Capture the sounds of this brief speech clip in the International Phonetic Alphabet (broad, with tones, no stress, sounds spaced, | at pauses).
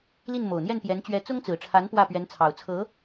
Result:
l i˥˩ n m o˨˩ ʊ̯ n̪ j ɛ˥˩ n p j ɛ˧˥ n t͡ɕ ɥ ɛ˧˥ t͡s ʊ˥ ŋ t͡s ɹ̩˨˩ ʈ͡ʂʰ a˧˥ n p w ä˥˩ p ɥ ɛ˧˥ n t͡sʰ ɑ˨˩ ʊ̯ t͡sʰ ɤ˧˥